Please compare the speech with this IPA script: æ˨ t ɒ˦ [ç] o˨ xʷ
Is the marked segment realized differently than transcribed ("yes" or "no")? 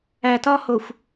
yes